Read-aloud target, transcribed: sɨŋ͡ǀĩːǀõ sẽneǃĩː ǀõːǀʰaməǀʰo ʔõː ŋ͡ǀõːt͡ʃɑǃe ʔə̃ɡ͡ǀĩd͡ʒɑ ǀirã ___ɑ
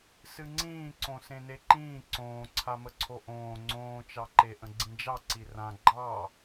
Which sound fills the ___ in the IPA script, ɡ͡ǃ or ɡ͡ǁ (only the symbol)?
ɡ͡ǃ